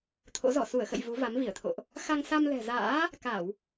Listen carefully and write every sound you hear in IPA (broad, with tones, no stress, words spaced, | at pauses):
t̪ʰo̰˧˥zɔ˧˩ su˧˩ə̯xə̰˧˨j vu˨˦va˨˦mvi˧˩ə̯t̪ʰo̰˧˨ʔ | xa˧ŋsa˧mlɛ̤˨˩za̰ː˧˥ | ka˧˩˨w